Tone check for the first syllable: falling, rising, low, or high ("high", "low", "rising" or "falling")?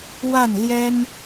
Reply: falling